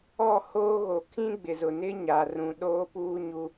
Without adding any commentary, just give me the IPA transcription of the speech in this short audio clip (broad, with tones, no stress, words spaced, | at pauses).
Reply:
ɔ˦˨hoː˦ɣo˨ kʰĩ˦ɡ͡bɪ˨zʊ˨nɪ˦ ɲa˨rũ˨ ɗoː˦puː˦ɲu˦